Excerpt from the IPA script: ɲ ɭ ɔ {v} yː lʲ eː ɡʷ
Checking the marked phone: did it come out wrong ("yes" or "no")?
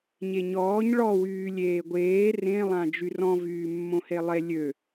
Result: yes